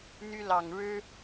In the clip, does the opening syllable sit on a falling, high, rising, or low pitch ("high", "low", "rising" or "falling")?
high